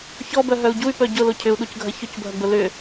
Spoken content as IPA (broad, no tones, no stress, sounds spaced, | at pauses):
ç ɔ b œ ɦ œ u̯ ɟ u y̯ p œ ɟ ʊ l o cʰ ʏ u̯ ɗ u c ɡʱ ɐ ç ʊ c bʱ ɐ ɡ͡b ʊ l ʏ